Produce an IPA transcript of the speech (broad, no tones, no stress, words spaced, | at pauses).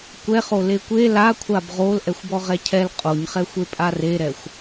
kʷɛχo lekʷe lakʷʰab ʁol ʔɛxʷbɔʁɛcʰɛl qʼoɲχɛxʷe pʼareɾɛxʷ